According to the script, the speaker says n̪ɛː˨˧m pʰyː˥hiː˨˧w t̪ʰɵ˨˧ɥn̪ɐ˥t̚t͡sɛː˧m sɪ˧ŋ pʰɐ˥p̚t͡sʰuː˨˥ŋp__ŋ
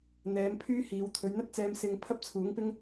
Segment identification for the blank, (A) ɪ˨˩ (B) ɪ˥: B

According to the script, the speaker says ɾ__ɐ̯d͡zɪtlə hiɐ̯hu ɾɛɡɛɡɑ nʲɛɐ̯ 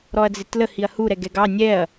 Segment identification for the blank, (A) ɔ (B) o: A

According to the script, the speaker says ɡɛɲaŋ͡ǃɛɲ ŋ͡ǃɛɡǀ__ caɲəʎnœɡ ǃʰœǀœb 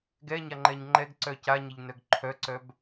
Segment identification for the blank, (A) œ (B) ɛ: A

